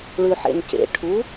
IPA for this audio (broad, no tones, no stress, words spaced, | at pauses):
ɭʉħḛncḛ ʈʰu